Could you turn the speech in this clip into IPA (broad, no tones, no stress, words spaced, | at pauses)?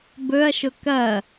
bɵɐ̯ʃʊ kɐ